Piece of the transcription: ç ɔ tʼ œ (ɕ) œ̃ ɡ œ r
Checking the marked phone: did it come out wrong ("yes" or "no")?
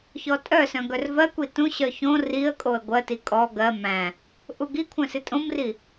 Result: yes